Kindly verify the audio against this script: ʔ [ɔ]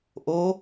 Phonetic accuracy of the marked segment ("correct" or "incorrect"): incorrect